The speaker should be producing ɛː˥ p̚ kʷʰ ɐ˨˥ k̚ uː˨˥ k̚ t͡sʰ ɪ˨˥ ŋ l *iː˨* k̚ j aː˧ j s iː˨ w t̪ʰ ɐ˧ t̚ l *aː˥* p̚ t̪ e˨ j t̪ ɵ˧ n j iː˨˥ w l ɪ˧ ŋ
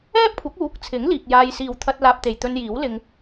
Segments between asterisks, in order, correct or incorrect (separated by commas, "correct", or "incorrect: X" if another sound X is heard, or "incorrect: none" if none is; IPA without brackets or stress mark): correct, incorrect: aː˧